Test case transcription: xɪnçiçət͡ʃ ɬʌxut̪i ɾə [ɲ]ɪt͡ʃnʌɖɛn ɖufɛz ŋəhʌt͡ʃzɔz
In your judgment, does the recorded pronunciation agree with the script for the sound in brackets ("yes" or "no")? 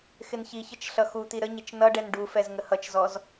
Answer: yes